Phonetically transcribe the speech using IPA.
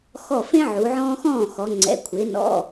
xɔ˧˩fẽ˦ ʕu˩˧ʕɔ̃ː˦xɔ̃ː˥˩ xɔ˩˧ŋ͡ǀɛ̰˩˧˩ kʷʰɪː˩˧nɔ̰˩˧˩

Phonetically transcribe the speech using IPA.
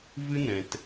vɨ˦nɛ̃˨t

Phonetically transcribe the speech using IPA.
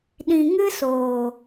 ɗĩ˨ ŋɨ˦soː˨

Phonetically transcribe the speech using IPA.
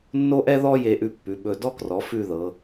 nːo˥ʔɛ˥ ðɔ˥je˧ʔʉ˧ pːʉ˩˧ɓɵ˧˩ dɔ˧krɔ˩˧ fʉ˥˧ðɤ˩˧

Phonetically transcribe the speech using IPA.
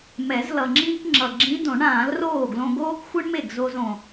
mɛ˨˩˦z lʌ˨˩ŋ͡ǁĩː˥kŋ͡ǁʌ˨˩ ɡ͡ǁĩ˧˥ dõ˨˩˦ɳãː˨˩˦lroː˥˩ɡlõ˧ ɡoː˥kxʷɯ˥ɳme˥˩ɡzo˧z õ˨˩

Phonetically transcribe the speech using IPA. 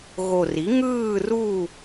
ɣo˨˩ri˩˥ ŋɯː˦˨ru˦˨

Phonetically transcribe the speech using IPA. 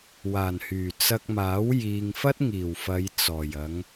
waː˨˩nhyː˨˩ t͡sɐ˧k̚maː˨˥w jiː˨ŋfɐ˥t̚ ŋiː˨˩w fɐ˨˧j t͡sɔː˨˩jɐ˨˧ŋ

